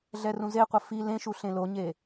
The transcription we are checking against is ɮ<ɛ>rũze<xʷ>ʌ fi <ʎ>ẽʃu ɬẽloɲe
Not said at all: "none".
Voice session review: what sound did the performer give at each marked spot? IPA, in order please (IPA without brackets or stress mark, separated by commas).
ɛ, qʷ, l